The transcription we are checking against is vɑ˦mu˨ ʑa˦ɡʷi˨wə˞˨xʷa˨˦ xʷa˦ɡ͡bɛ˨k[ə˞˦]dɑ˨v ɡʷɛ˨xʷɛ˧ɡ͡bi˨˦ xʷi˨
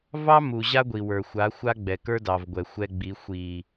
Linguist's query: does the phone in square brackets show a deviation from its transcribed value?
no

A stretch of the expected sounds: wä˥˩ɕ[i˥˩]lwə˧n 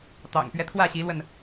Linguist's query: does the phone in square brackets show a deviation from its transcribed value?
yes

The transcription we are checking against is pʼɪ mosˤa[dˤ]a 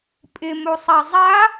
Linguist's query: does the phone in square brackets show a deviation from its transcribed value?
yes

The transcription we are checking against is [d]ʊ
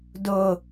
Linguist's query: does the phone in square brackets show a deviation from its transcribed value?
no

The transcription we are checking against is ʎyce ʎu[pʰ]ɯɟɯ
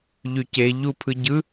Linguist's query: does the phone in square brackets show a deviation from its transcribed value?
no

